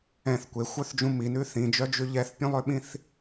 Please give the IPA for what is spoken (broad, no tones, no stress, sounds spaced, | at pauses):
ɛ̃ θ kʷ e xʷ œ θ d͡ʒ ũ m i n ʉ θ ĩ d͡ʒ œ d͡ʒ ʉ ʎ ɛ θ pʲ ũ lˠ ø ɓ ĩ θ